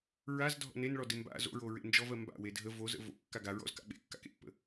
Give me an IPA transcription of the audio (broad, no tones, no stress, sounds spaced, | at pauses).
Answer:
ɹ a z dʱ ɔ̰ n e n ɭ ɔ d ɪ m b a̰ z o̰ ɹ o ɹ ḛ n d͡ʒ ɔ v ɜ m b a̰ w e dʱ ə v o z ə̰ v o̰ kː a ɡ a ɹ ɔ̰ z k a̰ ɓ ḛ kː a̰ k ḛ pː ə̰